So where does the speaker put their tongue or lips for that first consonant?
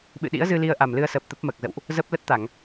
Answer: lips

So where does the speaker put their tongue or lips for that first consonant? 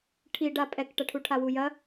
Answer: retroflex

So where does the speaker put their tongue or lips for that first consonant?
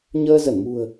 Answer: palate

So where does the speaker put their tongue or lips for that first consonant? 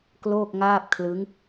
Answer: velum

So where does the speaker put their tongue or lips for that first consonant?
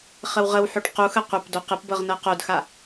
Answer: uvula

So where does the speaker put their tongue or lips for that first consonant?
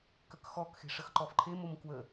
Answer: velum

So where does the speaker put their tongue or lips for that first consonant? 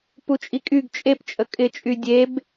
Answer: lips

